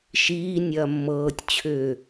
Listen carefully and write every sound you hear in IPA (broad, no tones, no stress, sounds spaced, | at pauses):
ʃ iː nʲ ɐː mː ɤː tʲ t͡ɕʰ ʏː